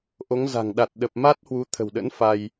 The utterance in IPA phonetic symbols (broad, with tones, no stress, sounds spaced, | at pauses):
ʔ o˨˦ ŋ z a̤˨˩ ŋ ɗ a˨˩ t̚ ɗ ə˨˩ p̚ m a˦˥ t̚ h w u˨˦ t̪ʰ ə̤˨˩ w ɗ ə̰˧˥ n f a˧ j